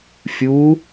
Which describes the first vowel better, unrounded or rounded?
rounded